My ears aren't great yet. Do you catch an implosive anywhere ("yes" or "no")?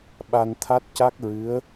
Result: yes